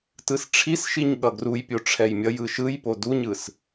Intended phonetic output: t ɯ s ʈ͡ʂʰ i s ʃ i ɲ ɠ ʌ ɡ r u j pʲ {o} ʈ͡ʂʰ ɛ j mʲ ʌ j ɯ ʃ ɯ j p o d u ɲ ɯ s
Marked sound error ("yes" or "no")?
no